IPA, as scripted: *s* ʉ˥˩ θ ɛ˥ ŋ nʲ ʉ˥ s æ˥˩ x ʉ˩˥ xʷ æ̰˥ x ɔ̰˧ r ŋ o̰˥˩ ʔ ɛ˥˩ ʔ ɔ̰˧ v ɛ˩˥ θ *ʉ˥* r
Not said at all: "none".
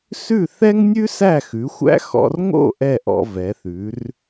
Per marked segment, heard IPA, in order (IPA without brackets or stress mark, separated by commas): s, ʉ˩˥